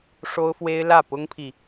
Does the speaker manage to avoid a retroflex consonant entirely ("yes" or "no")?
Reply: no